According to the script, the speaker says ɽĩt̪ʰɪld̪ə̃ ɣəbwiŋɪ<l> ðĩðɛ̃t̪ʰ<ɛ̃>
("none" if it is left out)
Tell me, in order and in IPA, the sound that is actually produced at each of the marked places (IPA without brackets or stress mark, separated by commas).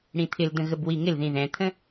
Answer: l, ə̃